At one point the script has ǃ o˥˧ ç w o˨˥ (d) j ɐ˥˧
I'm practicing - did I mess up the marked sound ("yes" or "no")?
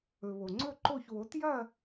yes